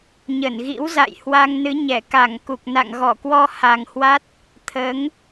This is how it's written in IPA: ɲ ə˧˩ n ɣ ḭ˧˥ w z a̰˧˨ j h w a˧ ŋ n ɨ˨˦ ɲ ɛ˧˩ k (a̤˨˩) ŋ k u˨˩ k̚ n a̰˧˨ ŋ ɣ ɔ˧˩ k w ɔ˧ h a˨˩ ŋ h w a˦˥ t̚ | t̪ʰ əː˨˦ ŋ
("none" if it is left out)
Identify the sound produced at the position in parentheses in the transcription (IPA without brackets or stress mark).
a˧˩